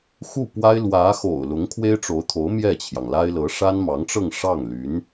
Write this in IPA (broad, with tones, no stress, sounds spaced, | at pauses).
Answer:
x u˥˩ p w a˥ ɪ̯ l w ä˧˥ x o̰˨˩ ʊ̯ l ʊ˧˥ ŋ kʰ w e˥ ɪ̯ ʈ͡ʂ o˧˥ ʊ̯ t̪ʰ o˧˥ ʊ̯ m j ɛ˥˩ t͡ɕʰ j ɑ˩ ŋ l a˥ ɪ̯ l ɤ˧˥ ʂ a˥ n m ɑ˧˥ ŋ ʈ͡ʂ ɤ˥˧ ŋ ʂ ɑ˥˩ ŋ l y˧˥ n